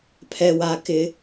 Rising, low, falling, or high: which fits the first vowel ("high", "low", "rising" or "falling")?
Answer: low